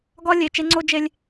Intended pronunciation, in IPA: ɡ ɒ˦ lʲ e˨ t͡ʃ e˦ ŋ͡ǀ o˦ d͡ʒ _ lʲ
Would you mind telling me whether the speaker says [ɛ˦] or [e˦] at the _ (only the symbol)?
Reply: e˦